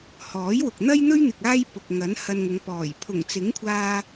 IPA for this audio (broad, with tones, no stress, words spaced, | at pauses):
hɔː˨˥jwʊ˨k̚ n̪ɐ˥jn̪ɵ˥ɥn̪ɪ˨k̚ aː˥jpʊ˨k̚ ŋɐ˨˥n hɐ˧nŋʊ˨˧ŋpɔː˨˩j pʰʊ˨˩ŋt͡sɪ˨˥ŋkʷʰaː˧